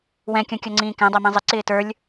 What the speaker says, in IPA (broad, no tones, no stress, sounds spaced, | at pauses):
w ɛ̃ kʲ ɔ̃ kʲ ɔ ŋ͡ǀ ĩː k æ̃ dˤ æ m ĩ zˤ ɪ ǀ ɪː t ə˞ lʲ